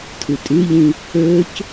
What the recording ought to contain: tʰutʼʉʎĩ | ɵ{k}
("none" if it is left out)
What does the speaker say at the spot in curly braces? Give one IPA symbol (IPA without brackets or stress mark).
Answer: c